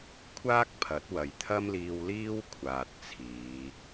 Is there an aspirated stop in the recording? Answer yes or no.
yes